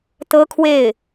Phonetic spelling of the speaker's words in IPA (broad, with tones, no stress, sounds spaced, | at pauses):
t̪ ɤ˥ kʰ w e˥˩ ɪ̯